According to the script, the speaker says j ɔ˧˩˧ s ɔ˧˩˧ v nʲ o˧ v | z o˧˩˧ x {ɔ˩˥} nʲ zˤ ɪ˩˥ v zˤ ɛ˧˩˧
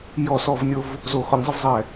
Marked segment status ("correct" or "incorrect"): correct